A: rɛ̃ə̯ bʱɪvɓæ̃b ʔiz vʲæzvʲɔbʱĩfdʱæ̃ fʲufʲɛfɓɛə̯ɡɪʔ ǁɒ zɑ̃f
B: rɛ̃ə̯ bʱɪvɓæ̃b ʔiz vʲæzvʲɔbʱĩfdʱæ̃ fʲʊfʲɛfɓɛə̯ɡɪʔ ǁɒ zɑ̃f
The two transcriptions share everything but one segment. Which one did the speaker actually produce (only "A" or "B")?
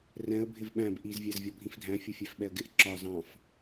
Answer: B